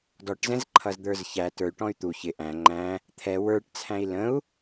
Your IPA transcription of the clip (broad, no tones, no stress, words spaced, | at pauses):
dɔʈzɛ̃zǃʰʌzd̪ə˞z çæ tə˞y̯ʈɔ̃y̯ t̪u çɪ ʔæ̃ ŋ͡ǃæ̃ | t̪ʰɛ wə˞ʈt͡sʰæ̃i̯ lə̃u̯